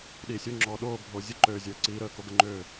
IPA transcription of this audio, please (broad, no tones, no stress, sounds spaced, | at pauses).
ɗ iː sʲ o ŋ͡ǁ ɔː ɗ oː bʱ oː zʲ ə ǃ øː zʲ əː ǀ iː ɾ əː k o ɡ ə ŋ͡ǃ øː